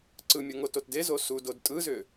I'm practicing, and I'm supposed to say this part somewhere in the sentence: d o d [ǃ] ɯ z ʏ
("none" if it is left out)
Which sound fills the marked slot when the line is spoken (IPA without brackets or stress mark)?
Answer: tʼ